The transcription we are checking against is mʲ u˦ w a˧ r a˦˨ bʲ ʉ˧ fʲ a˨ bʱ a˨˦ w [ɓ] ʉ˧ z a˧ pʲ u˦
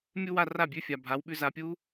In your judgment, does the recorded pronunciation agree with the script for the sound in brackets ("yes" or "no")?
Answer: yes